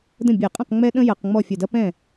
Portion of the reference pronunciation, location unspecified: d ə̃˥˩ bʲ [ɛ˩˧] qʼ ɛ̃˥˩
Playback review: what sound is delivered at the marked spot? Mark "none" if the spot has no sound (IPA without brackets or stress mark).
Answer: ɛ˧˩˧